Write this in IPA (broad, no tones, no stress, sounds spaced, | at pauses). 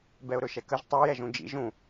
b ɛ ʊ̯ ɾ ɵ ʃ ɛ k ə ʒ tˤ ə˞ j ɛ ʒ ũ d͡ʒ ḭ ʒ ũ